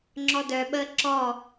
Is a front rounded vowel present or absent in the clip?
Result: present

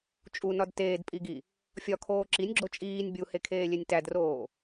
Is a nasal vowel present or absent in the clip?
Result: absent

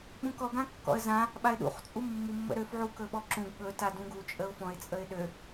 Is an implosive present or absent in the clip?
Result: present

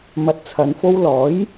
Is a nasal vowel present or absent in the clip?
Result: absent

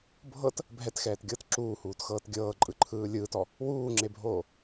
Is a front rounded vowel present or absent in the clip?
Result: absent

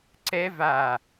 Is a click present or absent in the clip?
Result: present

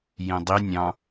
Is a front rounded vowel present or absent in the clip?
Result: absent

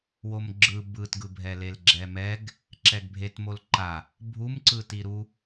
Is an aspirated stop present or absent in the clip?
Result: absent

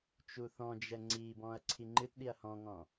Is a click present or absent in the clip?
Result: present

